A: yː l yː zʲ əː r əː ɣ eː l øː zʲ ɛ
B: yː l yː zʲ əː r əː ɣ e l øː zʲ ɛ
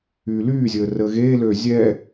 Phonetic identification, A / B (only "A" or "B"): A